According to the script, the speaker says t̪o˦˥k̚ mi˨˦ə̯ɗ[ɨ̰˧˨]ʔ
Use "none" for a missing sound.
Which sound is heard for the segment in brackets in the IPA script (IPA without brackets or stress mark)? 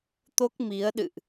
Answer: ɨ̰˧˨